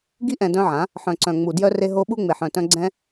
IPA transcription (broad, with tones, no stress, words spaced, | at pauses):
ɡi˧ʔɛ̃˨ dœ̃˧ʕã˨˦ | ħœ̃˨ǀœ̃˨ŋ͡mu˨ djœ˧re˧ ɦo˧ ɓu˧ŋ͡me˨ħœ̃˨tœ̃˧ ɡ͡ǀɛ̃˦